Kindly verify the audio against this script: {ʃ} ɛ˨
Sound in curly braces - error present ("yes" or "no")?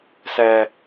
yes